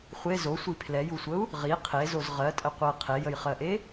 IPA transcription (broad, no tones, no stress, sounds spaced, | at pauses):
χʷ e z o sʷ i pʰ l ɛ j u sʷ ə u̯ | ʁ i qʰ e z o z ʁ ɜ tʼ ə qʷ ɜ qʰ e j ə j χ ɜ ʔ e